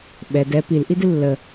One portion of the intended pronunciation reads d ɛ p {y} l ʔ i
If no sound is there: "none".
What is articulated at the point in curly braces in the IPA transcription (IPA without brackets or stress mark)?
i